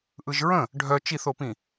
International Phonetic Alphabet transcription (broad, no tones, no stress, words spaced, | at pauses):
ʔɯʒɹə̃ | ɖʱœ t͡ʃiθopĩ